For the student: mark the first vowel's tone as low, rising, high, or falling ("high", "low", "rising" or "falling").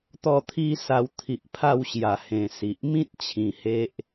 falling